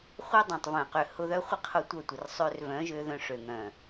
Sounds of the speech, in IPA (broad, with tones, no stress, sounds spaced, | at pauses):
χʷ œ˦ dˤ ẽ˨ tˤ v œ̃˨ q ø˨ h ʊ˧ ð œ˦ χʷ ɪ˦ qʰ ʊ˦˨ tʷ œ˦˨ tʷ ɪ˨ r sˤ ø˧ r v œ̃˨˦ ʒ ø˧ ð œ̃˧ ʂ ø˨ ŋ œ̃˨